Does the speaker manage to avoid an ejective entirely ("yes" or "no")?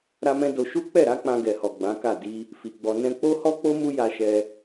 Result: yes